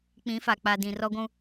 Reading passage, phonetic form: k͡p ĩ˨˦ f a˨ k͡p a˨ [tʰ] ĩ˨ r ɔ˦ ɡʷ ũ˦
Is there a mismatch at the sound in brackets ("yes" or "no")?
yes